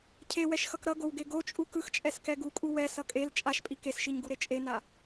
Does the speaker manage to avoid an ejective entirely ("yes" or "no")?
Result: no